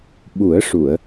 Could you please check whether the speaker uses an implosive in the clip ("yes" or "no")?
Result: yes